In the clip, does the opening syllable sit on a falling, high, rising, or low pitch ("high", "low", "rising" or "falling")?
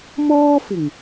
high